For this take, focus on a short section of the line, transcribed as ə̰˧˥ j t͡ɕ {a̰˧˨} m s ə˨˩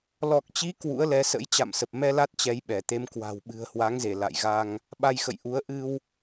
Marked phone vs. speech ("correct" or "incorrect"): correct